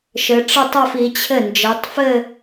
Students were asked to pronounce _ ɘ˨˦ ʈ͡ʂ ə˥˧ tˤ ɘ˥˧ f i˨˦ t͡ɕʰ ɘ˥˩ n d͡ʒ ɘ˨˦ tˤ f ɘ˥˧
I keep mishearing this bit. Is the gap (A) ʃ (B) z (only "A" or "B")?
A